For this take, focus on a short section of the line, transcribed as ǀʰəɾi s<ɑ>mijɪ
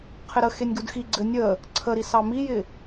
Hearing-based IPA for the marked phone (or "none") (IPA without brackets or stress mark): ɑ